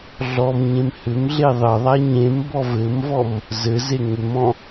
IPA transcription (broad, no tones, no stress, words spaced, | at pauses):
ɮɔmɲẽm hʏmɮe ðˤɘðˤa ɲẽmbɔ vɘmvɔm | zɘze ŋʏmɔ̃